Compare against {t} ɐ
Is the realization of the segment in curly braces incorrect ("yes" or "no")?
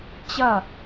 yes